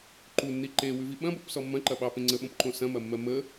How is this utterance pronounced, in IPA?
ǃunːi ǃewʉvi ɓɐ̃bopsɔ mːɐ̃ǃɐ ɓɑpẽ ŋ͡ǀəɓõpǃõ sɐ̃mɐmːɜ mə

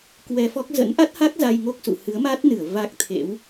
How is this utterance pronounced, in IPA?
kwɛ˧fɔ˦˥k̚ zə̰˧˥nʔa˦˥t̚ha˦˥k̚ za˧jŋo˦˥k̚sṵ˧˨ hɨ˨˦ə̯ma˦˥t̚nɨ˧˩ə̯ va˦˥k̚t̪ʰḛ˧˥w

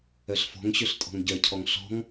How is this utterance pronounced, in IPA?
œɬfɔ̤ŋɕøɬ tʼɔ̤ŋɟœcʰɔŋ ɬɔ̤ŋ

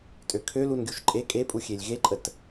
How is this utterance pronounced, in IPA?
tʼøkʰø lunɡʲuʃǃʼe kʼepʼu xʲelʲɣeǃʼət

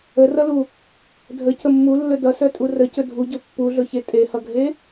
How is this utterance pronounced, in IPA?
ərʌlu | dʱəcə mːulːɵ dʌsœtʼu rəcɵ dʱuɟɵ pːuɮɵçe tʼehʌɡʱe

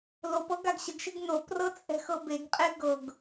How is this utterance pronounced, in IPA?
lop ɤɡaɡɕəɡʃɪɡ noprɤ t͡sʼɛ̤xɤbeɡqʼe ɡɤɡ

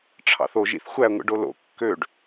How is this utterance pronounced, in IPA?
ʈ͡ʂʰɑ̰θoʒ ḭθxʷæ ŋʷḭɖolo̰ kːøɖ

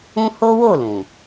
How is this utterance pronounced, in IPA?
ũ˦ ho˦wo˦˨ lũ˨

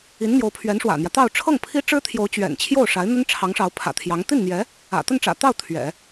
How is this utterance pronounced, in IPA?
i˧˥nn̪jo˧˥ʊ̯pʰɥɛ˧˥n ʂwä̰˨˩n̪jä˦ t̪ɑ˥˧ʊ̯ ʈ͡ʂʰɤ˥˩ŋ pʰi˥ʈ͡ʂɻ̩˥t̪ʰjo˧˥ʊ̯ t͡ɕɥɛ̰˨˩n t͡ɕʰjo˥˩ʊ̯ʂa˧˥ɪ̯n̪ə˥n ʈ͡ʂʰɑ˧˥ŋʂɑ˧˥ʊ̯pʰä̰˨˩t̪ʰjɑ˧˥ŋ t̪i˥˩nn̪jɛ˧˥ | ä̰˨˩ t̪ə˥˩nʈ͡ʂä̰˨˩t̪ɑ˥˩ʊ̯ t̪ʰɥɛ̰˨˩˦

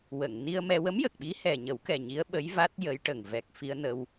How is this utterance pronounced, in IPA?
wə˨˩˨ŋni˧ə̯mɛ˧ wə˧˥mjə˨˩k̚ɓi˧˥ hɛ˨˩ɲə˨˩˦wkɛ˨˩ ɲi˧˥ə̯ɓə˧˥jva˦˥t̚ jə˧˥jʈə˨˩ŋ vɛ˨˩k̚ fi˧ə̯nə˧w

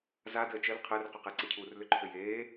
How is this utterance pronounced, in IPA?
zadəː t͡ʃəl qʰəːrqʏqɛǀe cʰuːrlʏǃʰʏjeː

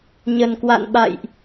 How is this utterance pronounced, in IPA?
ɲə˨˩nkwa̰˧˨n ɓa̰˧˨jʔ

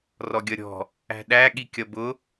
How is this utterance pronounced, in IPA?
rɔɡʲʌɾʲɔ̤ | æ̤ɗæ ɠikʲʌbʊ

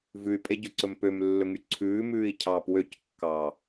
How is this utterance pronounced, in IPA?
vʉy̯pʼeɟɵǀɵm pømlːɵŋy ǀʰʉːmʉːi̯cʰɑːp wøckːɑː

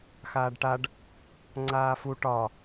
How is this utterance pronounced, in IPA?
xaːɖʈaɖ | ŋ͡ǀaːfu ʈɒ

